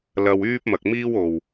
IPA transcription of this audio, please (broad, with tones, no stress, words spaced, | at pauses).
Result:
lɐ˧wyː˥p̚mɐ˨k̚ miː˥wo˨w